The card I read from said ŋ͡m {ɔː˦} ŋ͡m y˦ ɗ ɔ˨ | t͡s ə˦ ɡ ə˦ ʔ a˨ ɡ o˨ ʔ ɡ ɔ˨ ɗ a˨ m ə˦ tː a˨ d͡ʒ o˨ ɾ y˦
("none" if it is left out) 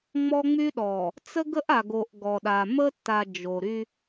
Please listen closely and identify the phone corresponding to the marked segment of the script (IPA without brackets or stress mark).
ɔ˦